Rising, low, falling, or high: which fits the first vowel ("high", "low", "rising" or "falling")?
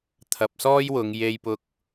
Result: low